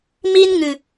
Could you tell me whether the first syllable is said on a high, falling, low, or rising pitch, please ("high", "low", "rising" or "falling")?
high